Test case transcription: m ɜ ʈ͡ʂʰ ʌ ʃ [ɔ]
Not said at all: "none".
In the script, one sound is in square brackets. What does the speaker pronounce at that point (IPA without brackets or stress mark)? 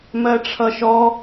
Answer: ɔ